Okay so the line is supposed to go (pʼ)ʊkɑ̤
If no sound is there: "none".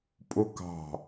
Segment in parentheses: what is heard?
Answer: pʼ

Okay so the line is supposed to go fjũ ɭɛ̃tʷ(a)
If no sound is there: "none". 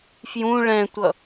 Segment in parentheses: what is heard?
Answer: ʌ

